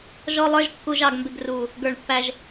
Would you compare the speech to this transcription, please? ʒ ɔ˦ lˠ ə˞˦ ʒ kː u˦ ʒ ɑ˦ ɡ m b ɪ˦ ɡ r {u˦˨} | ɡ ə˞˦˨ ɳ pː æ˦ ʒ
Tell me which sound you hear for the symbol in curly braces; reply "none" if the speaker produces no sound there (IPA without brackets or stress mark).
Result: u˦˨